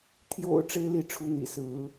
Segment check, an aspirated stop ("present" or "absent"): present